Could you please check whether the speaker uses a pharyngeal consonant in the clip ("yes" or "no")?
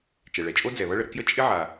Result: yes